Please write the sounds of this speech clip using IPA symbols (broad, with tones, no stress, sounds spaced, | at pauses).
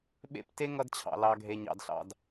ɓ ḛ˦˨ p t e˦ ŋ ʌ˧ d t͡ɕʰ ɑ̰˨ l ɑ˦ ɡʱ e˦ ɲ ɑ̰˦ d ɬ ɑ̰˦ d